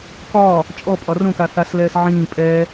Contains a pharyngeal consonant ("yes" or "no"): yes